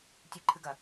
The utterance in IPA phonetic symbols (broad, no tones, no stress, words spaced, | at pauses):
tʲɨǃʰɨɡɐ